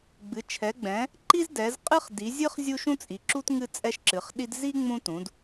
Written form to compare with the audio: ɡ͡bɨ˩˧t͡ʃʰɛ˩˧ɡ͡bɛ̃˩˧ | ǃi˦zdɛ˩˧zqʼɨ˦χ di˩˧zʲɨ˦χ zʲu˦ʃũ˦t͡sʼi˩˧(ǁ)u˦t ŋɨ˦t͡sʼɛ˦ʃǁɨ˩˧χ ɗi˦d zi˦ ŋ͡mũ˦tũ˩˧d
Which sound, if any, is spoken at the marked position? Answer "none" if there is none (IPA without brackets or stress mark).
ǁ